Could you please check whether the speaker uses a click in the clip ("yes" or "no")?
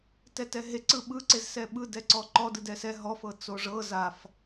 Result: yes